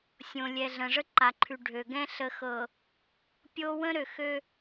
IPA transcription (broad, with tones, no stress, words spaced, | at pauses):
sʲõ˨lʲɛ˨ ɮə̃˨ʐə˦ǃa˨ǃʰʉ˨ ɖʱø˨ɡɛ̃˦ ɬə˨xɤ˨ | pʲo˦ wə̃˦ɾø˨xø˦